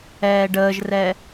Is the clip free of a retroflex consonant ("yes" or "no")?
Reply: no